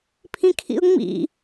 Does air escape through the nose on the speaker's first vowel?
yes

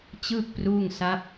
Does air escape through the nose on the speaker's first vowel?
no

